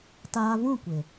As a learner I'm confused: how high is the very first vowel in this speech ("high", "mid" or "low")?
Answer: low